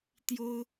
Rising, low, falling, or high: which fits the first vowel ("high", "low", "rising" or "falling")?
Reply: high